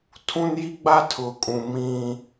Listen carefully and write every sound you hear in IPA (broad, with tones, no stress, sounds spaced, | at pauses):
tʰ ũ˦ n j i˦ ɡ͡b a˦ tʰ ʊ˨ kʼ ũ˨ m ĩ˦